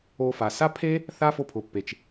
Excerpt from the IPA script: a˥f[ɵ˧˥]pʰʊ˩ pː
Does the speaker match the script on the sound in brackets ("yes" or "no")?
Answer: no